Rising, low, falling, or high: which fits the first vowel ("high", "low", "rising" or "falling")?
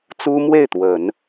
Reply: high